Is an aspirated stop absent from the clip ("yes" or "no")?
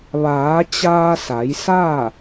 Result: yes